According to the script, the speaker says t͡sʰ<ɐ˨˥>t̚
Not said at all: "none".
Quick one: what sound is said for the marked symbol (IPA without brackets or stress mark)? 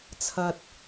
ɐ˨